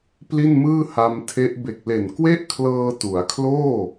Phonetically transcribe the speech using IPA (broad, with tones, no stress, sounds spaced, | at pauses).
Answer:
p l i˥˩ n m ɯː˥˩ h a˧ m tʰ e˦˥ ʔ b e˨˩ k̚ l e˨˩ n k w e˥˩ ʔ kʰ l ɤː˧ t u˩˦ a̯ kʰ l oː˥˩